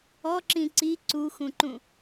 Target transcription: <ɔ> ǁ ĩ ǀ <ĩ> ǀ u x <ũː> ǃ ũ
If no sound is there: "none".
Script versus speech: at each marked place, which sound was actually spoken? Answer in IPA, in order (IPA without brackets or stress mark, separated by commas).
ɔ, i, ũ